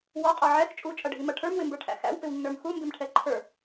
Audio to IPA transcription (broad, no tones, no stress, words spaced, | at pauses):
wɔqʼɔ ʕɛx t͡ʃʼut͡ʃʼʌɖʱimʌ ʈʰə˞mwɪmbə˞ʈʰæ̰ xæ̰wpɪwnːə˞m xumbɪmʈʰɛ ǃʰə˞